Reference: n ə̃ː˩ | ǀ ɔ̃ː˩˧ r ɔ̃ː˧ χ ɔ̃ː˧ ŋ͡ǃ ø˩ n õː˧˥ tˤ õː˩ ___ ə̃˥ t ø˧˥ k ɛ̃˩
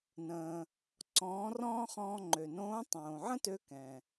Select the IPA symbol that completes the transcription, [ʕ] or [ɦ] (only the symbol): ʕ